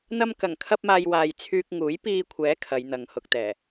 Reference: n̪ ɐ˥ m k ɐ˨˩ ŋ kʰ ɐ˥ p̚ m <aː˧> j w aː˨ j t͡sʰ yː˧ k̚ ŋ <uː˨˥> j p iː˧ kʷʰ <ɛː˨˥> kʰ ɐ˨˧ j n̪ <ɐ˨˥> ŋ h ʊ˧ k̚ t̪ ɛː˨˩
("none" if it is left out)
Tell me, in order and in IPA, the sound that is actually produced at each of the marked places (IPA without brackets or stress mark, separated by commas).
aː˧, uː˨˥, ɛː˨˥, ɐ˨